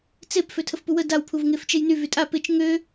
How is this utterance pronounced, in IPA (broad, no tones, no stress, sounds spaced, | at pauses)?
t͡s e p f ø tʰ ə f p u w ə d a w pʰ u v ŋ e f t͡ʃ e j n y v y tʼ a p ɪ t͡ʃ ŋ ø